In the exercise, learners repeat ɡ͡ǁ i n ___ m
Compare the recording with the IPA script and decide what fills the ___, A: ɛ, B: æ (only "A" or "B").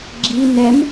A